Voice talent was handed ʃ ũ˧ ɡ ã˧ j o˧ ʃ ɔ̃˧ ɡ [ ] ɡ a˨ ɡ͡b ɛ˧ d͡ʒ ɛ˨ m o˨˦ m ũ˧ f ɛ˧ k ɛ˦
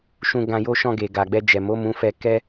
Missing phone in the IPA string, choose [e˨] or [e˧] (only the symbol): e˨